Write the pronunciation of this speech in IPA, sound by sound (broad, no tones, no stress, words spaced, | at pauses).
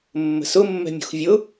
mːə̤sʊ mːɛ̤mʲṳxvʲʊ